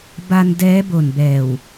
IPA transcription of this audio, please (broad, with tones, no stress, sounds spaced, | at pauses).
b a˧ n d ɛː˦˥ b o˨˩ n b ɛː˨˩ w